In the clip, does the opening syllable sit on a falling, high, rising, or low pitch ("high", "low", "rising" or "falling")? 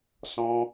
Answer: high